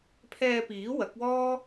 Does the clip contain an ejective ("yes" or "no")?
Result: no